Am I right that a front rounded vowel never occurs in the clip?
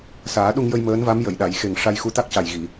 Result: yes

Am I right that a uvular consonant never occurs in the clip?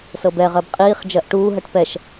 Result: no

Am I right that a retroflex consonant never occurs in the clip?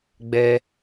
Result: yes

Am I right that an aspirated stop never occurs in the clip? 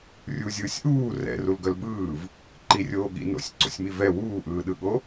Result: yes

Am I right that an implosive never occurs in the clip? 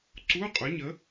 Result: yes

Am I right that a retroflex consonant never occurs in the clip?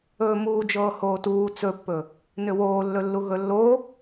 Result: yes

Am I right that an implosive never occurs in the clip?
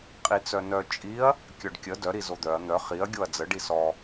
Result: yes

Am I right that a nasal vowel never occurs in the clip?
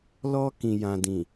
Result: no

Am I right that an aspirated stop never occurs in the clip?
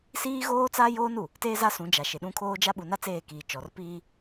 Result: no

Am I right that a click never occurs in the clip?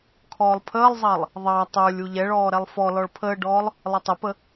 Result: yes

